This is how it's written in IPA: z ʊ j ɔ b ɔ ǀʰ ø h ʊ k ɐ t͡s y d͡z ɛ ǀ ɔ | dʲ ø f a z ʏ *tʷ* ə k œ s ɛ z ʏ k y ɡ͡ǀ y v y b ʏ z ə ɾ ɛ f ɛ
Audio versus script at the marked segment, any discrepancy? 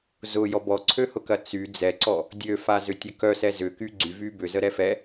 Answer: yes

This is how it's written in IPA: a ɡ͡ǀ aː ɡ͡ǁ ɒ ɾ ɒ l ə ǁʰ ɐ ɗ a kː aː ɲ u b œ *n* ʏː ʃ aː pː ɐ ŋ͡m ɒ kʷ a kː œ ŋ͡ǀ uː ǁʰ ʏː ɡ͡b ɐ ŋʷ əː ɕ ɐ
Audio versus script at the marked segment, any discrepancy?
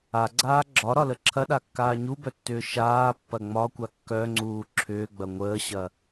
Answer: yes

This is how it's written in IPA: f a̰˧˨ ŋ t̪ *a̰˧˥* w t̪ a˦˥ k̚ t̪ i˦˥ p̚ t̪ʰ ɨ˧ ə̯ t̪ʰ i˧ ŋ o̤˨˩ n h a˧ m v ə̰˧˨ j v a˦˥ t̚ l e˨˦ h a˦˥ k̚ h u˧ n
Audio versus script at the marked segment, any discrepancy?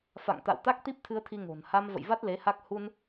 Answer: yes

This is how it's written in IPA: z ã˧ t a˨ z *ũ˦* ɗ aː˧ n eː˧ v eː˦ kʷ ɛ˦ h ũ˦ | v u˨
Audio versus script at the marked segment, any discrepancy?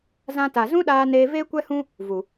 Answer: no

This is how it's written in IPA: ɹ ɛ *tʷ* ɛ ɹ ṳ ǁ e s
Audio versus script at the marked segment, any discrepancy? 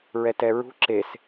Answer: yes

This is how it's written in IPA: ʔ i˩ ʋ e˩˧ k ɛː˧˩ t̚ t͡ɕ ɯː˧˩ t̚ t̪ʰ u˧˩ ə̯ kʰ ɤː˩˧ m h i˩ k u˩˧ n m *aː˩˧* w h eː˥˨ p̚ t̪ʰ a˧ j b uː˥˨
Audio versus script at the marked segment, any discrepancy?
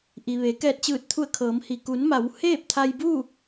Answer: yes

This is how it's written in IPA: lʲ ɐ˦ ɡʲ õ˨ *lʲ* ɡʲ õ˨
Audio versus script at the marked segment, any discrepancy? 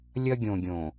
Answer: yes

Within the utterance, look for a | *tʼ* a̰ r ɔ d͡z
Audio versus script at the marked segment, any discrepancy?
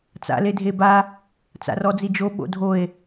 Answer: yes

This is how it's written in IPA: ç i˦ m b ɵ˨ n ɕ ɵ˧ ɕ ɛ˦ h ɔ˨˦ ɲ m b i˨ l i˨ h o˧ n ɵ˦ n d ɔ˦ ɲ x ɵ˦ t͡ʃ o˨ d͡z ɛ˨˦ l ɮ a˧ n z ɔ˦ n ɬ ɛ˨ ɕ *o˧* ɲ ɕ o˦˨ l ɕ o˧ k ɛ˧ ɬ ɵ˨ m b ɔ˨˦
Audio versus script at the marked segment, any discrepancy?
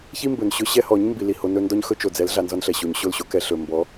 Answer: yes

